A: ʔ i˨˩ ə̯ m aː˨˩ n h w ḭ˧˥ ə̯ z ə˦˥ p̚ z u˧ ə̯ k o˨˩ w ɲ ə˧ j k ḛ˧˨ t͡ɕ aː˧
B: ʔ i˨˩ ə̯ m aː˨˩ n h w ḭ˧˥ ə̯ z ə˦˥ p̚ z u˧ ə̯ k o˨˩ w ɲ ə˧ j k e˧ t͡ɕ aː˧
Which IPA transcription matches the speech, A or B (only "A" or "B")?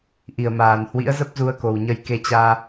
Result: B